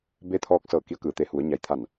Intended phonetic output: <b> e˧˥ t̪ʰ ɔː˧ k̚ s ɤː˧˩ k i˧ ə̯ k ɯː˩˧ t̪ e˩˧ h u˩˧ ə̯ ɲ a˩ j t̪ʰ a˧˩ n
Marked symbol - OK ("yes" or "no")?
yes